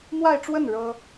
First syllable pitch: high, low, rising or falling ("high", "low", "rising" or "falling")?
falling